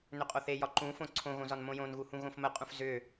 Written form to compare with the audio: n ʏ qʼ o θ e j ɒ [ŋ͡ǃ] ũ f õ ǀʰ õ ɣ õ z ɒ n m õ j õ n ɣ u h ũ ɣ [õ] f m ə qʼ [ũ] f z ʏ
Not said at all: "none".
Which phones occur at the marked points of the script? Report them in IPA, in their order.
ǃ, õ, ũ

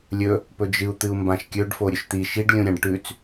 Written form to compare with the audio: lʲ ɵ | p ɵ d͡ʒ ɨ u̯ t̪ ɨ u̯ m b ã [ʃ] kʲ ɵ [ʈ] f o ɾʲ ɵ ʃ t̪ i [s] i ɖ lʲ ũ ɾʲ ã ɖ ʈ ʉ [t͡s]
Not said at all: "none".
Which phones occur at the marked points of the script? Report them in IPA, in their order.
ʃ, ɖ, ʃ, t͡s

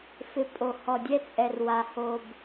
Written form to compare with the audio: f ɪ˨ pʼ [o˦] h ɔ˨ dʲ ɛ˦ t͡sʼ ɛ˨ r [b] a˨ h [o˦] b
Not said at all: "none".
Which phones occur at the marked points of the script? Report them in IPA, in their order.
o˨, w, o˨

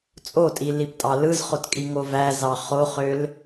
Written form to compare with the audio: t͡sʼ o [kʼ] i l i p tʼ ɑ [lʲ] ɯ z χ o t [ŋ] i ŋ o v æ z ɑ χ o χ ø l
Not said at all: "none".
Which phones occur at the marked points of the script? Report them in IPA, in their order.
tʼ, l, kʼ

